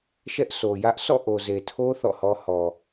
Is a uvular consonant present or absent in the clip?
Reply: absent